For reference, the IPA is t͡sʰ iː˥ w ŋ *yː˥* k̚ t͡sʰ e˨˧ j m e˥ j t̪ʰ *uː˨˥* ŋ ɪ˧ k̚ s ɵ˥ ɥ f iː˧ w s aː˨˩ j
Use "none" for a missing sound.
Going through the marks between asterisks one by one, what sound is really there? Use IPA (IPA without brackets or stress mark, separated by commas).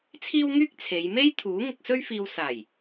yː˥, uː˨˥